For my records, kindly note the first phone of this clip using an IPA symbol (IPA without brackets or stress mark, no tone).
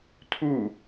tʰ